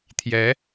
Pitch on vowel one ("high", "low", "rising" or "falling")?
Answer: rising